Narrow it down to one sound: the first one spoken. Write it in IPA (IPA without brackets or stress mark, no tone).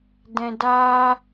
d